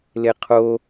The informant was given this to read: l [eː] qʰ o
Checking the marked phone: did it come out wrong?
yes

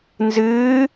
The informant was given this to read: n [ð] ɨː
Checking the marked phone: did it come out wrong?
yes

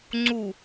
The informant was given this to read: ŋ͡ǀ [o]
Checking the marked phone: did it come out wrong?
yes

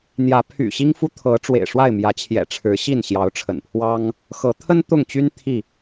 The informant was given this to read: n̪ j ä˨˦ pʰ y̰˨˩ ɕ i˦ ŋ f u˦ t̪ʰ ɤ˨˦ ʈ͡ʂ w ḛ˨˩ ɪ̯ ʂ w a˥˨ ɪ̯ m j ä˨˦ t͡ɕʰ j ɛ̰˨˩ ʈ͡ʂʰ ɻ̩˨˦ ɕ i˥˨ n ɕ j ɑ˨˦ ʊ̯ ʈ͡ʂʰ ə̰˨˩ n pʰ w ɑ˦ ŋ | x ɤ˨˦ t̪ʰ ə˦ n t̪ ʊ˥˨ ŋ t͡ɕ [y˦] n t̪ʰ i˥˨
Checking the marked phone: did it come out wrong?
no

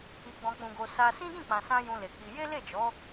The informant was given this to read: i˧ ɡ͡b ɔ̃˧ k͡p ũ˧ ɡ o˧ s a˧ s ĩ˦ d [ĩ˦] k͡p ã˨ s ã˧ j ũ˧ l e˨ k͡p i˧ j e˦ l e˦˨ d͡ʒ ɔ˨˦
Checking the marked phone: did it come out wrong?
yes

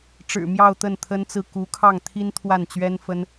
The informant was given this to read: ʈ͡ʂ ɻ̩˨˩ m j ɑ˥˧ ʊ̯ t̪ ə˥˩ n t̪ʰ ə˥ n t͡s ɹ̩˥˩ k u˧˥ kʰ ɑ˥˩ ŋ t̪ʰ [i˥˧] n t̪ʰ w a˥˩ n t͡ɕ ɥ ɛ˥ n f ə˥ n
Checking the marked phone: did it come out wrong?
yes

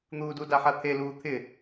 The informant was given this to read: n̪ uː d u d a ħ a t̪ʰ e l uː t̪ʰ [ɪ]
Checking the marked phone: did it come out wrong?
no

